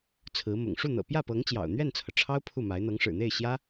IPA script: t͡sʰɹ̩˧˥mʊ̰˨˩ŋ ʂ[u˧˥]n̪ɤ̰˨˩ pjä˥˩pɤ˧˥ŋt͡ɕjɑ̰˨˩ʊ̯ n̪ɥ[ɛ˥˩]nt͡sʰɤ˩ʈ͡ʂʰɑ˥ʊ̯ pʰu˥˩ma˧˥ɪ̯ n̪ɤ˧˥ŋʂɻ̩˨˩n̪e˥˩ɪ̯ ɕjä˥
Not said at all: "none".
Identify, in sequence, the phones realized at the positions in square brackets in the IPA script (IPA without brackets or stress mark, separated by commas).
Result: u˥˩, ɛ˥˩